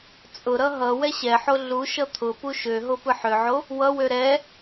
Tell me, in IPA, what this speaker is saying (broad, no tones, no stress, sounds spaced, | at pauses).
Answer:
t͡sʼ ʊ ɾ ʌ ɦ ʌ w ɛ ɕ ɛ ħ o ɮ u ʃ ʌ t̪ʰ ʊ p u ʃ ø ɦ o p ɯ ħ ø ʕ o | w ʌ w ø ɾ ɛ